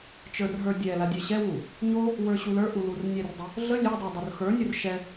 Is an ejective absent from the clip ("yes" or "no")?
yes